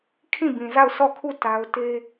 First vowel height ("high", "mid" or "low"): high